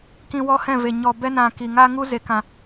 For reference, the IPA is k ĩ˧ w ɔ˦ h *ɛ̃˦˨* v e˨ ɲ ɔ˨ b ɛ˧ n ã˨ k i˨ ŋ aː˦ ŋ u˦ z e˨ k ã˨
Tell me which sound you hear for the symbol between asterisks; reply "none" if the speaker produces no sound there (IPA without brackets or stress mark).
ɛ̃˦˨